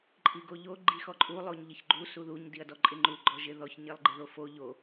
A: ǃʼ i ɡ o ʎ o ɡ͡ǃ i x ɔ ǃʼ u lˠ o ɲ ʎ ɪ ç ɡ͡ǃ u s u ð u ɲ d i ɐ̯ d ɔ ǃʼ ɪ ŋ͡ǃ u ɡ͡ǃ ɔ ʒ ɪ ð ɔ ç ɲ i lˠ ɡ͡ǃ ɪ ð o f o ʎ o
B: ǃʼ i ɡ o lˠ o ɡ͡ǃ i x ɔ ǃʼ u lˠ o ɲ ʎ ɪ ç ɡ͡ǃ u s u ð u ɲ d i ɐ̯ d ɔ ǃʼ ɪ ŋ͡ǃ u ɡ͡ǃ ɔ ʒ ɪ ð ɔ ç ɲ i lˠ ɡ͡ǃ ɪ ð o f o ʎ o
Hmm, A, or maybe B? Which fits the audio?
A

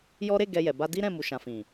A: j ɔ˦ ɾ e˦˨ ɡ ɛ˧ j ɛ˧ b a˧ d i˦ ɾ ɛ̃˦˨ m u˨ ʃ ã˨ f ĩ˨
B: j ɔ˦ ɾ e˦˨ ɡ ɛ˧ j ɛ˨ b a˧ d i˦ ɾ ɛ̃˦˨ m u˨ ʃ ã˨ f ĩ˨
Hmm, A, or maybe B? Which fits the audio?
B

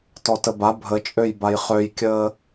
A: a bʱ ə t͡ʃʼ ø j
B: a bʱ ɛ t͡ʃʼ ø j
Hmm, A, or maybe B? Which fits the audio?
A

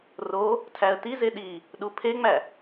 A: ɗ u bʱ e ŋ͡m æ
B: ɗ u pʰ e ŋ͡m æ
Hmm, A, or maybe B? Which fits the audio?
B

